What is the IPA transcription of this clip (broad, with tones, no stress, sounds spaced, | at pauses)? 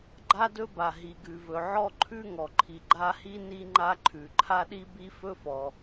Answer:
ɡ͡ǃ a˥ d ɵ˥ b a˩ ɦ i˩ ɡ ʉ˩ v ɵ˩ ʕ ɔ˥ ǃʰ ʉ˥ ŋ ɔ˩ ǃʰ i˩ ɡ͡ǃ a˥ h i˥ n i˥ ŋ͡ǃ a˥ ǃʰ ʉ˩ ǃʰ a˥ ɗ i˥ b i˥ f ɵ˥ f ɔ˩